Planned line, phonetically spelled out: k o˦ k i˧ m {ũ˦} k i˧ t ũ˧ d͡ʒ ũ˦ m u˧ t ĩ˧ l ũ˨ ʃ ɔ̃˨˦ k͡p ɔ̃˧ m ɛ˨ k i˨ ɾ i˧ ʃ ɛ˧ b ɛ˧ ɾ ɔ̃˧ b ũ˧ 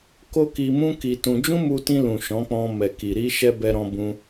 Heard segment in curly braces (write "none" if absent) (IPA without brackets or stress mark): ũ˦